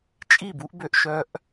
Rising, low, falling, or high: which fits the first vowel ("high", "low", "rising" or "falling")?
falling